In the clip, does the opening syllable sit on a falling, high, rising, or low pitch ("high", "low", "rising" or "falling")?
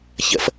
low